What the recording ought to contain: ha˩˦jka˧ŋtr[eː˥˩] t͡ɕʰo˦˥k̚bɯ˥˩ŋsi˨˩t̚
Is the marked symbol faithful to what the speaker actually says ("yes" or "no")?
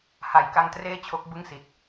yes